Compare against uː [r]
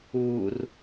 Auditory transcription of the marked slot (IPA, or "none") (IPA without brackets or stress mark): r